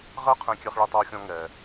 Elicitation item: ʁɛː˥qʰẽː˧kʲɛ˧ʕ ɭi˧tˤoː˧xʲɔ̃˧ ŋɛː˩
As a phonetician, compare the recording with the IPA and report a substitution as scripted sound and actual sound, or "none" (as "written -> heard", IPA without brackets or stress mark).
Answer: ʕ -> χ